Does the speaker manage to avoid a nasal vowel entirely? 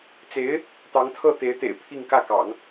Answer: yes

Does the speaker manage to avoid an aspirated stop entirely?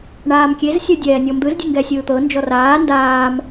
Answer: yes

